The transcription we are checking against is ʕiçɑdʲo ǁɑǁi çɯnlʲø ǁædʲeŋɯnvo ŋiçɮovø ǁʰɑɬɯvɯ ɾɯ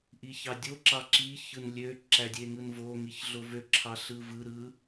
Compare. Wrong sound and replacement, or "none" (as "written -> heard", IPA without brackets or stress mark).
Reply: ʕ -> ʔ